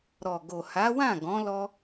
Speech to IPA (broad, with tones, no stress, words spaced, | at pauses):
ɾɔ˨ɡo˨ ha˨˦wã˦˨ɡɔ̃˨˦ lɔ˦